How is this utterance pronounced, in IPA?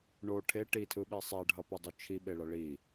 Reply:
ɳo ʈʰe ʈitʰɯɓi sˤɛɖʱʌpɯdˤu t͡ʃʰiɓeɭʌ ɭi

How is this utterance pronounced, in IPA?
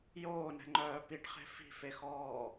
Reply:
joːnɛ̤ŋ͡ǃœː piʈχe̤ fi̤fexɔː

